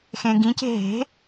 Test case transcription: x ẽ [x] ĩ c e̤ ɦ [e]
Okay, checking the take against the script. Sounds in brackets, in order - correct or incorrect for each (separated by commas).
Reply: incorrect, incorrect